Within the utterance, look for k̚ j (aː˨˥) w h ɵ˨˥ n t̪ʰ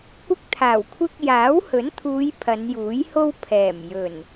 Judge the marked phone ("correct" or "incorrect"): correct